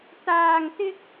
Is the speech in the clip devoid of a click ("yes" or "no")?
yes